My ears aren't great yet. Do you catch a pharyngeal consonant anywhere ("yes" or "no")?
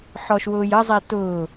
yes